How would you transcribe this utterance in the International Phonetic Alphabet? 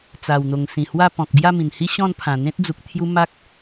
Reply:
t͡s a˨˩ w n̪ o˨˩ ŋ s ĩ˨˩ h w a˥˧ p ɔ̃˨ k̚ b j a˥˧ m ĩ˨˩ n h i˦ ɕ ɔ̃˥˧ n pʰ ã˨˩ n̪ ẽ˦ t̚ d͡z u˨ k̚ t̪ʰ j u˦ m a˦ k̚

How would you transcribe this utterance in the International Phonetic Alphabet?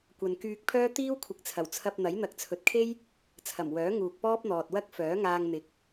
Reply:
kʷ ɐ˨ n k yː˧ k̚ pʰ œː˥ t̪ iː˥ w kʷʰ ɪ˨˥ k̚ t͡sʰ ɐ˨˩ w t͡sʰ ɐ˧ p̚ n̪ ɐ˨˥ j n̪ ɐ˨ k̚ t͡sʰ ɵ˨ t̚ kʰ e˥ j | t͡sʰ ɐ˨˩ m w œː˨˥ ŋ uː˨ k̚ p ɔː˥ p̚ n̪ ɔː˨ t̚ w ɐ˥ k̚ f œː˨˥ ŋ aː˧ ŋ n̪ ɪ˨˥ k̚

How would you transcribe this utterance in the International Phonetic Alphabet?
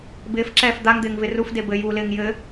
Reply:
b ɪː f ǁ ɛː f d̪ a ŋ d̪ ɪː ŋ v ɪ r u f d e b ɘ j uː l ɪː ŋ j ɘ

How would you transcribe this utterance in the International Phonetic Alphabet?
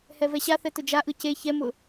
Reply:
h ɛ v ɛ ɕ a θ ɛ t ʊ d͡ʒ a ʔ ɯ c e ç ɛ m ʊ

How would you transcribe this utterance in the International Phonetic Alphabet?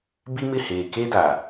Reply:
b i˦ m ɪ˦˨ h eː˨ k e˦ d a˨

